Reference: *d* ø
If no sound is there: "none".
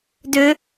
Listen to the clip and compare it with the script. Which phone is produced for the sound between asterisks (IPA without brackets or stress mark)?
d